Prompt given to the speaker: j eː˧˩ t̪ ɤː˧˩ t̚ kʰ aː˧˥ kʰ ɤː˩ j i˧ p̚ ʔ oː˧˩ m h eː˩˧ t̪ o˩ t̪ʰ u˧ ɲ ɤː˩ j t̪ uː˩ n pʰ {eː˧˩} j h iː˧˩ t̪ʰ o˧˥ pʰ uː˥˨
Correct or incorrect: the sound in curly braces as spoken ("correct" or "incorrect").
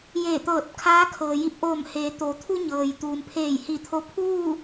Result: correct